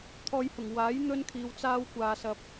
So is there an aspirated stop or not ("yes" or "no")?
yes